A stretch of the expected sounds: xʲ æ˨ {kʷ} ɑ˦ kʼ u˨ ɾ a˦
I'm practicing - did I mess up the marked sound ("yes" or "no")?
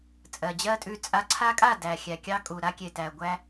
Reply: yes